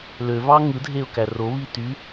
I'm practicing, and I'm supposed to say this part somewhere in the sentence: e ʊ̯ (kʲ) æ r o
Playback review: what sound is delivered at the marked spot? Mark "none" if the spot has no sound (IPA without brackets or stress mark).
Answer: k